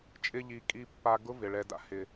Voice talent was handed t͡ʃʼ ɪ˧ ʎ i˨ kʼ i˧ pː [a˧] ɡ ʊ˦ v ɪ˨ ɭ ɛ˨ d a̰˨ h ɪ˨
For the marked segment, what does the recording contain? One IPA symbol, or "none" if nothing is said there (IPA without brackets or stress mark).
a˧